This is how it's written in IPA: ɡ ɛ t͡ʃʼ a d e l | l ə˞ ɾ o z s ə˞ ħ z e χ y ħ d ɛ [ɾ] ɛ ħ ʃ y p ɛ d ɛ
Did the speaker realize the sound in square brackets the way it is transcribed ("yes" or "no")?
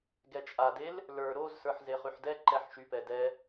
no